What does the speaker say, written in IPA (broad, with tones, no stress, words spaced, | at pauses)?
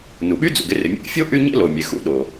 nu˩ɓy˥d͡zṵ˩ɡ ɪ˥rɪ˩mʲḛ˥ʔ fʲo˥ ʔy˥ ɲḛ˥lo˩mʲe˩ xṵ˥ɗo˩